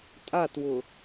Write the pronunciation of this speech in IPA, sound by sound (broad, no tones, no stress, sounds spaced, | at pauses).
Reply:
tʼ a t w ʊ